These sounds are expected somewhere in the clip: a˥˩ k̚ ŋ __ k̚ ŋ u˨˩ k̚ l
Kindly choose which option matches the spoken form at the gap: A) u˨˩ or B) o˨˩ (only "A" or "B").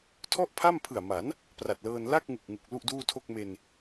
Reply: A